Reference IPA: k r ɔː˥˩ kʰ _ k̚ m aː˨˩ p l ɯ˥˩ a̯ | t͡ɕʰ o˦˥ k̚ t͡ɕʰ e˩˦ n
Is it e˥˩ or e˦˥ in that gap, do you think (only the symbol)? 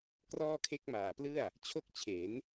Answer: e˦˥